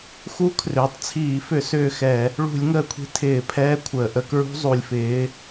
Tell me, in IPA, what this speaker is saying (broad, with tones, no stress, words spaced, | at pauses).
xu˦˥kʰrʏː˩˧tˤt͡sʰiː˧˩˧fʏ˧˩˧ sʏː˦˨xɛ˧˩˧ | ɭṳ˧˩˧lʲ ŋəː˦˨kʷʰi̤˦˥ tʰɪː˧˩˧pʰɛː˦˥ kʷʰəː˩ʔə˦˨kɹṳ˦˥ zˤu˩lʲfɪː˩˧